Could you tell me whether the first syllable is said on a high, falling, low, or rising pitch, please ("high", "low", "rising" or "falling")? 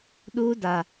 high